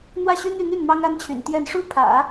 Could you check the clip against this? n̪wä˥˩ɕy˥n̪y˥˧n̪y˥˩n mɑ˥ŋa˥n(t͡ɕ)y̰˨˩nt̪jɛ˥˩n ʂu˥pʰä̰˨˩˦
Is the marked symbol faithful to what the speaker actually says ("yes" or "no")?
no